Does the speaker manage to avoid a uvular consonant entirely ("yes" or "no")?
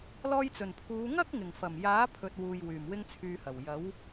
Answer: yes